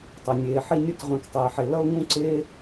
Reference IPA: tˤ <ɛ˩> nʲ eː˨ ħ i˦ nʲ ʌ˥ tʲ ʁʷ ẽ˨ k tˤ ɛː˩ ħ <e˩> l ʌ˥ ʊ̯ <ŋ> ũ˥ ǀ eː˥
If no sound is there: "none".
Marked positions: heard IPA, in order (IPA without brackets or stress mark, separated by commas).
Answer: ɛ˩, e˩, ŋ